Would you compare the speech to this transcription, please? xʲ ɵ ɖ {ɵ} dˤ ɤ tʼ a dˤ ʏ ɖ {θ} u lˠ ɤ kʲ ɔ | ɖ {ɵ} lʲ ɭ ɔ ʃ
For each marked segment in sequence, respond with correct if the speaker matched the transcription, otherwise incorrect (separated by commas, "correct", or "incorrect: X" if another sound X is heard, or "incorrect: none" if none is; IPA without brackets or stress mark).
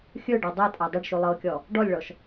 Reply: incorrect: ɤ, incorrect: ʃ, incorrect: ɔ